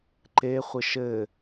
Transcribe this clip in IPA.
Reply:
ǃ e χʷ ɘ ʃ ɘ

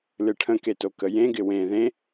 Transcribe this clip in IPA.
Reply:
l ɨ ʈʰ ə̃ k e t o k ə j ẽ ɡ ɪ w ẽ ð ẽ

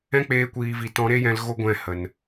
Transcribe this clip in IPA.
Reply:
ɛ̃˦ k͡p eː˧ kʷ iː˨ v i˨ t ɔ̃˨˦ ɾ e˦ j ɛ̃˧ l ɣ o˦ ɡʷ ɛ̃˦˨ h ə˨ n

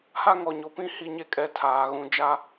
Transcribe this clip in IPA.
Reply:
h a˦ ŋ ɔ˨ ɲ o˨ p ĩ˦ h i˦ ɲ e˦ kʼ ɛ˦ tʰ aː˨ ɣ ũ˨ d͡ʒ a˦

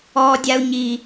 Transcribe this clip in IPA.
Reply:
ɔː dʲ a u̯ ɲ i

